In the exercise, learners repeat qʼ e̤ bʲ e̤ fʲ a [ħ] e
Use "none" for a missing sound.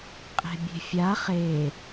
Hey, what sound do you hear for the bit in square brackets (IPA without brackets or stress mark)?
χ